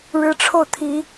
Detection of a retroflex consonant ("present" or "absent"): present